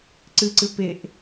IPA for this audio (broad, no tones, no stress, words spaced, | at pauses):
ǀɨǀɨ peʔ